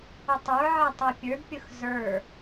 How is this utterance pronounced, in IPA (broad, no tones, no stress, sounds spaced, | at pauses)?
ʊ tˤ ə˞ ʕ æ tˤ ɛ pʲ ə˞ d pʲ ʊ x z ə˞